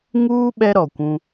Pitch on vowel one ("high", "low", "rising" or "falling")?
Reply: high